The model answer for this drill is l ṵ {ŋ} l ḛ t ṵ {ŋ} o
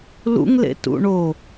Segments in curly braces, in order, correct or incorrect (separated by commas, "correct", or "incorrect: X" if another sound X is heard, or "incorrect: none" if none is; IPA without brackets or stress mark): correct, incorrect: ɳ